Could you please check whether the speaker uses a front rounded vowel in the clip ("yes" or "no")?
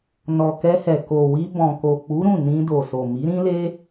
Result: no